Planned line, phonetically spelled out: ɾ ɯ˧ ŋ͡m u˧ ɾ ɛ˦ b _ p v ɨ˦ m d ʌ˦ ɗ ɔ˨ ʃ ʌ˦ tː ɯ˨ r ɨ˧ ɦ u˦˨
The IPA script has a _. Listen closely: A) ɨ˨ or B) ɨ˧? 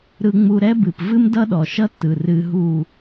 A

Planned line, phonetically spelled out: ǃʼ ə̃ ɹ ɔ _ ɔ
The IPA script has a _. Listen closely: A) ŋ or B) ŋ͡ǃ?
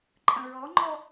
B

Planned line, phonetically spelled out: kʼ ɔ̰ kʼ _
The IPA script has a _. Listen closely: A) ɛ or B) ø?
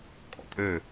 B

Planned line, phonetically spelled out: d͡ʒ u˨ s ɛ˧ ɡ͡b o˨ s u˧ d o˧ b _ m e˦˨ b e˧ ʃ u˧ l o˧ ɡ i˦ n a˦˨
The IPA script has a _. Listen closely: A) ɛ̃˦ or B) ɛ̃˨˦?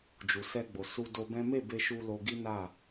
A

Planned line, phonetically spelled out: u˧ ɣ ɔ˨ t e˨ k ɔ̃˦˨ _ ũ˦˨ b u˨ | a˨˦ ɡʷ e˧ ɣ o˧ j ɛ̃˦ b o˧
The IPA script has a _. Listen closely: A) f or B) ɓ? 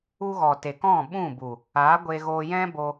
B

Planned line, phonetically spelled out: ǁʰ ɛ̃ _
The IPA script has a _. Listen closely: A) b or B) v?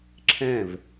B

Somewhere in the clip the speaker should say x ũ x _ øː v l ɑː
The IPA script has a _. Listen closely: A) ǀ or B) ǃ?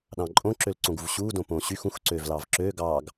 A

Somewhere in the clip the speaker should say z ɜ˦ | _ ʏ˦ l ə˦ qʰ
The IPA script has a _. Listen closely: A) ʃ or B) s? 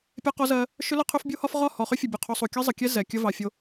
A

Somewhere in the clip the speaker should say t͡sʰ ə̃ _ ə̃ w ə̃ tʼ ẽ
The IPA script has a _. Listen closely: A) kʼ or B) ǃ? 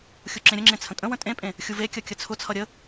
A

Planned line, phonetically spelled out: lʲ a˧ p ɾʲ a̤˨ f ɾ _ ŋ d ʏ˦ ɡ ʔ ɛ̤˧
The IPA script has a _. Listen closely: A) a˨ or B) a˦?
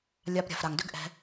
A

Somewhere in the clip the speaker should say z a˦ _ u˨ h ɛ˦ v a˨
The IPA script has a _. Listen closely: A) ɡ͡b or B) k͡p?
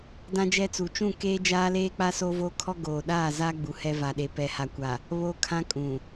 A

